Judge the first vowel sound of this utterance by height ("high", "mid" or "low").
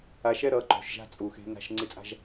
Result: low